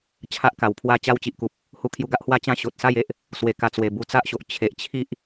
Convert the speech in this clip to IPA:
t͡ɕʰa˦ʔka˨˩wpʰwa˦ t͡ɕa˦wt͡ɕi˨ʔku˨p̚ | hu˧kʰju˧ɡa˦ʔhwa˥˧ t͡ɕã˦ ɕo˨t̚ sa˥˧je˦ʔ | swe˨˩ ka˧t͡swe˨˩ bu˧t͡sa˦ʔɕo˨ʔ t͡ɕʰe˨ʔt͡ɕʰi˦ʔ

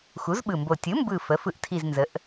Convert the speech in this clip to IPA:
xu˩˥zɓɯ˨˩mbo˨˩ tʲɯ˩˥mbɯ˨˩ fə˩˥ fɯ˨˩ʔtʰi˨˩z nzə˩˥ʔ

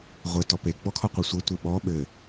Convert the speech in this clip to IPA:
ʁʷɘ tɔpe ɡ͡bɔkʰɔqʷɛsʷɘ tʷeɓɔ ɓɘ

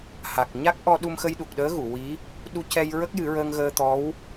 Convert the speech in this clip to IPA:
ha˨˩k̚ ɲa˦˥k̚ʔɔ˧ ɗu˧mxə˧jɗu˨˩k̚ɗəː˧˥ ɣu˨˩˨wi˧˥ | ɗu˧cɛ˧j ɹə˦˥k̚jɨ˨˩˦ɹəː˧ŋ ɣəː˧t̪ɔ˧˥w

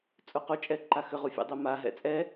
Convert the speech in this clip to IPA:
t͡sʼuqut͡ʃʼɛ ǃaxʏʁu fʲɛ̰dˤɛmaɦɛ̰ t͡sʼɛ

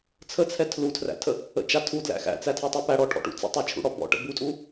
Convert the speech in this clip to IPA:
t͡sʰət͡sʰɛ tʰlutʰræ̰tʰə | ə̰t͡ʃa tʰudlæ̰ xæ̰t͡sætʰɛtˤɛ pæɽɔʈʰɔ̰ʈṵ t͡sə̰tˤɛt͡ʃʰṵɽɔ bɔ̰ʈə̰ butʼu

